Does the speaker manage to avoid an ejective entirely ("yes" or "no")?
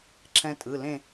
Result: no